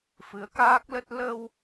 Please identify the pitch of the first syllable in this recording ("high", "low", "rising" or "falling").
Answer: rising